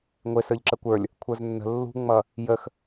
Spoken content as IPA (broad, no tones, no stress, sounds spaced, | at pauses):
ŋʷ ɪ s ə˞ ʎ ǁ ə kʷ ə˞ lʲ | kʷʰ ə˞ z nː ə̤ lː ṳ ŋ͡m ʌ | j ə x